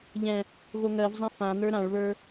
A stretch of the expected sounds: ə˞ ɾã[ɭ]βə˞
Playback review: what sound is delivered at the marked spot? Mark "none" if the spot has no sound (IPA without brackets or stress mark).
ɭ